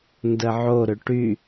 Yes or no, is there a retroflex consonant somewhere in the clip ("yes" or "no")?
yes